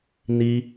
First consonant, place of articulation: alveolar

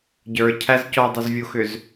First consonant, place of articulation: palatal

